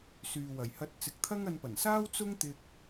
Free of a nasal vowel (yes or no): yes